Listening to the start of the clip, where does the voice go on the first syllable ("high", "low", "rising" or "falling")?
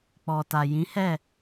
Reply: low